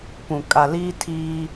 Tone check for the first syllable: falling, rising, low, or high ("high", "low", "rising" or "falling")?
low